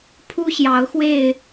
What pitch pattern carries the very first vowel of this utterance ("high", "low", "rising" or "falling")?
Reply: high